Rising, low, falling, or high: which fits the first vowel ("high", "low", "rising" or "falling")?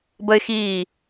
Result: high